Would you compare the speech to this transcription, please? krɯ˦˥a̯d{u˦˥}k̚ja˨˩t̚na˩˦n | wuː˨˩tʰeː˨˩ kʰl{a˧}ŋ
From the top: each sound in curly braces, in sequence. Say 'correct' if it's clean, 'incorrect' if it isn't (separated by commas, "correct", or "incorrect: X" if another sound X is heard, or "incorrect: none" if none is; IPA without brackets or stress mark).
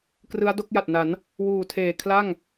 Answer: incorrect: o˦˥, incorrect: a˥˩